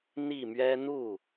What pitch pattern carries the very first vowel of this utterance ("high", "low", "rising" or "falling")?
falling